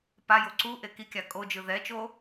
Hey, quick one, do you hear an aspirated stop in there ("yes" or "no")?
no